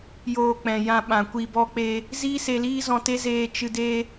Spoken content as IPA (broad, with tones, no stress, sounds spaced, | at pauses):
j oː˧ k͡p ɛ̃˨ j ã˧ ɓ ã˨ kʷ i˧ b ɔ˦ k͡p e˦ | z iː˦ s e˧ l iː˦ z ɔ̃˧ t e˦ z eː˧ t͡ʃ ɨ˧ d e˦